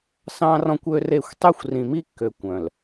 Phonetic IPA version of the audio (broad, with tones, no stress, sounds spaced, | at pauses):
s ɑ̃˦ r ɔ̃˦ kʷ ø˦ r e˦˨ xʷ tˤ y˦˨ xʷ r ĩ˨ m i˦ kː ø˨ kʷ œ̃˨ l